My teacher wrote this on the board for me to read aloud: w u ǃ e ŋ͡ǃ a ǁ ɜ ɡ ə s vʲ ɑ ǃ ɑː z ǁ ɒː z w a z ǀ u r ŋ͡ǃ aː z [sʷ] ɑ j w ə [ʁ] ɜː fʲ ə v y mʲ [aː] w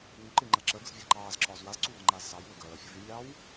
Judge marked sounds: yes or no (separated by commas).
no, no, no